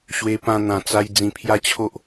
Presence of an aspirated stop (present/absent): present